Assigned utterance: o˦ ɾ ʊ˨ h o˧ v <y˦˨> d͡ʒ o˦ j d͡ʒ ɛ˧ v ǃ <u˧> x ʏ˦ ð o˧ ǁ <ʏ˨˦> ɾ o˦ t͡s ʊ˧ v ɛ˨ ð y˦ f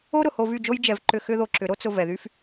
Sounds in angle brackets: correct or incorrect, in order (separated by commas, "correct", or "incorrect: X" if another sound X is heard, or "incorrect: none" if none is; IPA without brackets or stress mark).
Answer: correct, incorrect: ʏ˧, correct